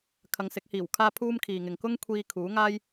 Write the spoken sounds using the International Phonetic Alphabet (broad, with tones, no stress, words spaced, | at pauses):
kʰɐ˨˧ŋsɪ˨˥k̚hiː˨˩wkʰaː˥ pʰuː˥mkʰiː˨ŋɪ˨ŋ kʊ˥ŋkʷʰiː˧ kʰuː˨˥ŋaː˥j